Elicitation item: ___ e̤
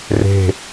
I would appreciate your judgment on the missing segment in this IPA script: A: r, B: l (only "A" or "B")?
A